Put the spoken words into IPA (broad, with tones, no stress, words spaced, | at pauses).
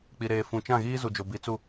k͡pi˨ɾeː˨ fũ˨t͡ʃã˦˨ɣiː˦ zu˨d͡ʒo˨ bi˨˦t͡su˦˨